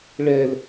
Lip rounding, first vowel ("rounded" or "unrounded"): unrounded